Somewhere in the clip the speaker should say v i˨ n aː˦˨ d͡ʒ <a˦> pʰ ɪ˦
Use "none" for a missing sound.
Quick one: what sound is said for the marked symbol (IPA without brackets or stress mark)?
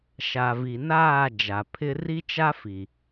a˨